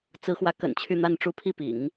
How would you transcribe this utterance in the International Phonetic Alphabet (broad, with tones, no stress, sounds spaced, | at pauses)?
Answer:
t͡s ɹ̩˧˥ x w ä˧˥ k ə̰˨˩ n t͡ɕʰ y˥˧ n̪ a˥˧ n ʈ͡ʂ u˥˧ pʰ i˥˩ p ḭ˨˩˦ ŋ